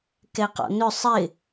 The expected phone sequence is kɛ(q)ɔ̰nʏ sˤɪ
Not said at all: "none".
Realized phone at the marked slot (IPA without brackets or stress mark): q